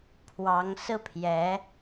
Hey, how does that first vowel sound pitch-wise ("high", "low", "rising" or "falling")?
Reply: rising